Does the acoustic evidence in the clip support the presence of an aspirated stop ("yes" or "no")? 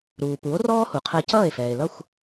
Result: yes